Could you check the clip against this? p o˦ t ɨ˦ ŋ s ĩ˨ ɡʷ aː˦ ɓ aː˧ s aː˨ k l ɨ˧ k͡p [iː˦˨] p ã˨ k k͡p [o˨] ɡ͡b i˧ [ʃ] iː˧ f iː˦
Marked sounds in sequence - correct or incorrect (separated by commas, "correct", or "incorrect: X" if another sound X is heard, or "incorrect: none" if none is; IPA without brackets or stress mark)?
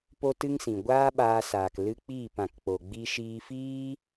correct, correct, correct